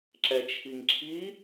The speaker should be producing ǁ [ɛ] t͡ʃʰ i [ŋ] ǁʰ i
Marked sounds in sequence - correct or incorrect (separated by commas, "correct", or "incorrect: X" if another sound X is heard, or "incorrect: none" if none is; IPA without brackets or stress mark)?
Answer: correct, correct